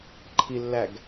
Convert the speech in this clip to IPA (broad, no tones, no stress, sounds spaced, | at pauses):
ǃʰ i lː æ ɡ